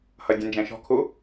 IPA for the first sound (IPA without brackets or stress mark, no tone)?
h